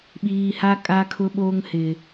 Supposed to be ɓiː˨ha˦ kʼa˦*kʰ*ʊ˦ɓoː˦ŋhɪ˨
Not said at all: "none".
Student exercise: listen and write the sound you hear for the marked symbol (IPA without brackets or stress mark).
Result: kʰ